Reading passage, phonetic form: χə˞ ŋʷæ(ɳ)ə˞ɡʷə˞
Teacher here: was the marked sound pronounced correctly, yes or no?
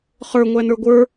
no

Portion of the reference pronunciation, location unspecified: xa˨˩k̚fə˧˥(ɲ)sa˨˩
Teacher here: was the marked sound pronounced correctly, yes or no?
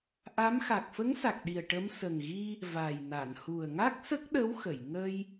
no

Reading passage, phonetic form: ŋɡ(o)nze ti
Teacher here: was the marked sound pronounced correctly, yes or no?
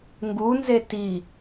no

